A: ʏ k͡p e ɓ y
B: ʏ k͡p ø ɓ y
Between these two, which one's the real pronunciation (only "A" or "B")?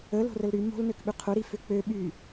B